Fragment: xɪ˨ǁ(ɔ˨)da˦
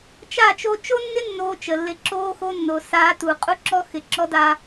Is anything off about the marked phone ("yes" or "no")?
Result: yes